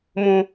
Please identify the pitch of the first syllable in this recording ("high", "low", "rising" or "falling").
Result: high